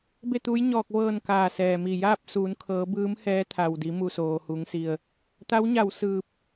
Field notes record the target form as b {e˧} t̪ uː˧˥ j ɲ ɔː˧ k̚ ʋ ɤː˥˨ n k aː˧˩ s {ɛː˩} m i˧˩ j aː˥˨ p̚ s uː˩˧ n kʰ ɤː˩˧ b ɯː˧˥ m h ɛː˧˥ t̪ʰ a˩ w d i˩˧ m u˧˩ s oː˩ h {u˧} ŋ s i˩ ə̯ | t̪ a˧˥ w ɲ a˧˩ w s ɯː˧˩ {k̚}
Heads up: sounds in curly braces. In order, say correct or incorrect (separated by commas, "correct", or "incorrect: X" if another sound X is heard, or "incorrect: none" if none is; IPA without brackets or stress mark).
incorrect: e˥˨, correct, incorrect: u˩˧, incorrect: p̚